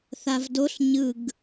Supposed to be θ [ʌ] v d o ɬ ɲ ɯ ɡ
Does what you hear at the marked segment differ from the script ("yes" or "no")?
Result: yes